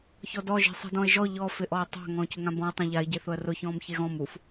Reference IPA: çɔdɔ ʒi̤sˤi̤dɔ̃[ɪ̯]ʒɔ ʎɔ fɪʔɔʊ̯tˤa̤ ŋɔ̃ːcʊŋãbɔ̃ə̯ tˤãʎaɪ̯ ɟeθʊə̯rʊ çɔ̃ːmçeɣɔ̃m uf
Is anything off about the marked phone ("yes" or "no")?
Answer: no